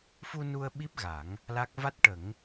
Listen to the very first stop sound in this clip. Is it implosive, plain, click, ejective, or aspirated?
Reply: implosive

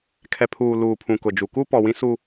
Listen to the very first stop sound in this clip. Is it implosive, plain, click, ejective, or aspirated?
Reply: aspirated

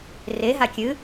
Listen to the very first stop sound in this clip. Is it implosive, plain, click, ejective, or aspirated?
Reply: plain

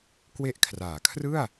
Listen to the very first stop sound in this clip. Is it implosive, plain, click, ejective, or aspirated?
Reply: plain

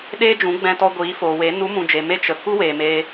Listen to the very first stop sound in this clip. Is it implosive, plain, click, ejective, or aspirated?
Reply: implosive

